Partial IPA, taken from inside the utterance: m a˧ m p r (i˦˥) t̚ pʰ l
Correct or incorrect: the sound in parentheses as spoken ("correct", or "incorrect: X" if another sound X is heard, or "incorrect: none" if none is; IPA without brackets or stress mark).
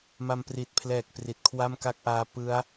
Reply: incorrect: i˨˩